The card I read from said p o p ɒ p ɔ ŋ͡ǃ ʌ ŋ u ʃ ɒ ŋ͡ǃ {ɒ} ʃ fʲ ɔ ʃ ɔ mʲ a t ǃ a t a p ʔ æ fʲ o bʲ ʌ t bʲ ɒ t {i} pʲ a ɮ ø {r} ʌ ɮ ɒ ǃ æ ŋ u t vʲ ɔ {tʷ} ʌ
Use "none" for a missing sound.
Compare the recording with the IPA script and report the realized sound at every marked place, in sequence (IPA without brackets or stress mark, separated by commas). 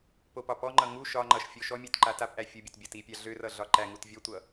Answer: ʌ, i, r, tʷ